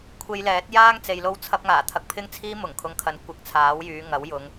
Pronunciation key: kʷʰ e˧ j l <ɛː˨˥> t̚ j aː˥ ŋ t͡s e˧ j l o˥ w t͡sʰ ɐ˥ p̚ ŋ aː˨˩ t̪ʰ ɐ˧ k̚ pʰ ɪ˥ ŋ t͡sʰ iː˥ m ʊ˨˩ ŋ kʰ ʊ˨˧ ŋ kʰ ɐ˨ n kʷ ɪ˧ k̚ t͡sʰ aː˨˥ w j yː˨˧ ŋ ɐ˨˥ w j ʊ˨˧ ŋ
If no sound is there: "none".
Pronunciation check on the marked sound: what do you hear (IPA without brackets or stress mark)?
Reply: ɛː˨˥